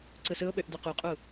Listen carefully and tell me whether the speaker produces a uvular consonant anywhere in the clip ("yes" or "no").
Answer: yes